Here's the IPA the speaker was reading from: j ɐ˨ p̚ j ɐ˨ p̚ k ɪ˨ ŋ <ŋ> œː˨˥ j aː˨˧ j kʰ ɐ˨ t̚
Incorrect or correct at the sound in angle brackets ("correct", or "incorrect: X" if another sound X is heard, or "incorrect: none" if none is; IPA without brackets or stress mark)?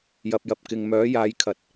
incorrect: m